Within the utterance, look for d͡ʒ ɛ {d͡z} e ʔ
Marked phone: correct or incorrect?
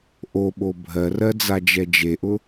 incorrect